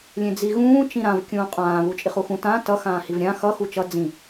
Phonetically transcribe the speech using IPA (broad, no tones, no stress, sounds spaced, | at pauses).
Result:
lʲ ẽ d͡z i ɣ ũː t͡ʃ ĩ ɾ ã v kʲ ũː qʼ ãː β u t͡ʃʼ i χ u x ũ t ã t ʌ x ãː h i v ɾʲ ã x ʌ x u t͡ʃ ʌ d͡z ĩ